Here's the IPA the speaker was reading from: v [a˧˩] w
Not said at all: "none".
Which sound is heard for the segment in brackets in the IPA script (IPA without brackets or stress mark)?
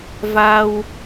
a˧